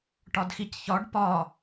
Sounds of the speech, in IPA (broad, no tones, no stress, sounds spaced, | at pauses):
ʈ ɒ d x i c ç ɒ ɖ p ɒ